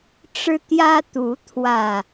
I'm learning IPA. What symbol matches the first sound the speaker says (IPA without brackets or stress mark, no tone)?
ʈ͡ʂ